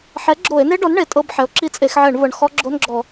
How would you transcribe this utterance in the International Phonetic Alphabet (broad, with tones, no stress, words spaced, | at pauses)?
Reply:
ħɛ˩˥ɡ͡ǁo˧˩˧e̯ne˦˥ɖɔ˩˥n ɳe˩˥tʼɤ˧˥˧bħɛ˩˥o̯ǁi˦˥ t͡sʼe˧˩˧xʕɛ˧˩˧ɳvɤ˨˩ɳ xɔ˦˥ ɡ͡ǁo˧˥˧nɡ͡ǁɔ˧˩˧